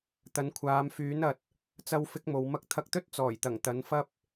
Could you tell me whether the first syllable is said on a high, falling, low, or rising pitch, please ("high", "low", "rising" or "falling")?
rising